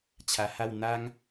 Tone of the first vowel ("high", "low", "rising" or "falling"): low